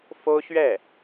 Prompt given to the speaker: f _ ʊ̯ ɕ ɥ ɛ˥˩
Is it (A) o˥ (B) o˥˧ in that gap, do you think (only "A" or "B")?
A